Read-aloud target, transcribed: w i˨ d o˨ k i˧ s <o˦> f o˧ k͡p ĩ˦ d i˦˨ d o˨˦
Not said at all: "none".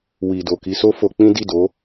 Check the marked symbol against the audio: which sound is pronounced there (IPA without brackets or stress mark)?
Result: o˦